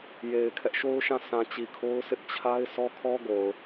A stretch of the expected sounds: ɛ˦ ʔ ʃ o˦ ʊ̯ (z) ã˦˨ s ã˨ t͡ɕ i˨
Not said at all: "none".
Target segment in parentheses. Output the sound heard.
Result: ʃ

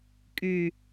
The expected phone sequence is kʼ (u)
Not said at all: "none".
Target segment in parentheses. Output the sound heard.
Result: y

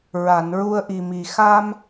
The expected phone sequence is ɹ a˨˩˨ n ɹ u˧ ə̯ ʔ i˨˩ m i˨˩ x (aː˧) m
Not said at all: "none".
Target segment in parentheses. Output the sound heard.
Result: aː˧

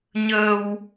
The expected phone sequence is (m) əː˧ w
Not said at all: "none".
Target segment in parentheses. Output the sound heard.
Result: ɲ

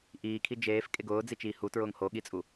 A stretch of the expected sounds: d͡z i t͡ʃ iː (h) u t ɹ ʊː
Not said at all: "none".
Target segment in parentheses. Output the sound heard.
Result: h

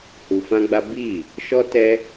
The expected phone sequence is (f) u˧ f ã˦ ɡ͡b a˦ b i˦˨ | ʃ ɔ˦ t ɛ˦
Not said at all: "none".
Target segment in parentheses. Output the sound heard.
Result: h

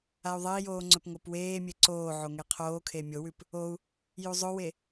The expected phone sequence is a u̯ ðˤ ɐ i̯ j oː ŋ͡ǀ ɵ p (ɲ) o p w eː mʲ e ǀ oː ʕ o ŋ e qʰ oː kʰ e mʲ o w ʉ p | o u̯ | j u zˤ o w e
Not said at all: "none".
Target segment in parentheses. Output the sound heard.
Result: ŋ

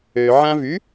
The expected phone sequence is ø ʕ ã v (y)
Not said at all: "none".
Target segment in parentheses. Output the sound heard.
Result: y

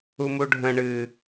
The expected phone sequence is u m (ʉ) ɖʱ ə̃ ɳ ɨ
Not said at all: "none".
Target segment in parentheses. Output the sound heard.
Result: u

